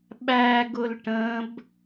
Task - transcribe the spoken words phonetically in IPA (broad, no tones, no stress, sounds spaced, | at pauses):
ɓ æ ɡ ʊ l ʈ ə̃ b